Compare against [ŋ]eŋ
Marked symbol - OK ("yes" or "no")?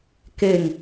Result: no